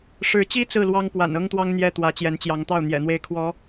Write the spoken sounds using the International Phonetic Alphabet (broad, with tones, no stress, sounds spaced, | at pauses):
ʂ ɻ̩˧˥ t͡ɕ i˥ t͡s ɹ̩˥˩ l w ɑ˥ ŋ p w a̰˨˩ n ɤ˥ ŋ t̪ w ɑ˥ ŋ n̪ j ɛ˥˩ t̪ w ä˧˥ t͡ɕ j ɛ˧˥ n t͡ɕ j ɑ˧˥ ŋ t̪ ɑ˥˩ ʊ̯ n̪ j ɛ̰˨˩ n̪ w e˥˩ ɪ̯ kʰ w ɔ˧˥